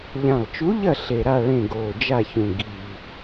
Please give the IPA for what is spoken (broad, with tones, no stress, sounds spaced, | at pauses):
ʎ ã˨˩ lˠ t͡ʃ u˧˥ ʎ ɐ˦˨ ɬ e˨˩ ɾ a˦˨ ɭ ẽ˦˨ ɡ oː˨˩ d͡ʒ a˦˨ ç ũ˨˩ ɡ i˨˩